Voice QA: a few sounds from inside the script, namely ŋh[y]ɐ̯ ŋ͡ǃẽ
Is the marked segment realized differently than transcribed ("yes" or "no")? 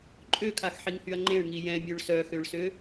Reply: no